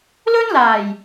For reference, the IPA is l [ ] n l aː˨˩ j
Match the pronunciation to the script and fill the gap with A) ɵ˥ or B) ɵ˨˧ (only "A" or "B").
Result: A